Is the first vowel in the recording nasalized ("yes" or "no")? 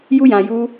no